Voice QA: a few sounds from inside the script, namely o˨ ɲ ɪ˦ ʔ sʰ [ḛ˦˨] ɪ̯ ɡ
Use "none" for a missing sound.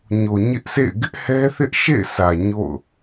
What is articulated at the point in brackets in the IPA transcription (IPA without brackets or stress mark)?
ḛ˦˨